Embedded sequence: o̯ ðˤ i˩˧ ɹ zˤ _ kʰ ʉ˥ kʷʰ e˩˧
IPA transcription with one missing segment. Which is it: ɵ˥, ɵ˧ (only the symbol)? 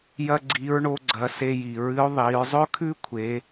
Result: ɵ˥